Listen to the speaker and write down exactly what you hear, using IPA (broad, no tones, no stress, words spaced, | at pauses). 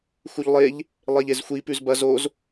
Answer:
xuʎlˠeʎ | lˠeʎezxʷi pʉzbɐz oz